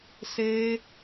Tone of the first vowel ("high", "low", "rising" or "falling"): high